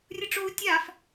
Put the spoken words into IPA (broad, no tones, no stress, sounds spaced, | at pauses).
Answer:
rʲ ɯ ʈ͡ʂ o u̯ tʲ a f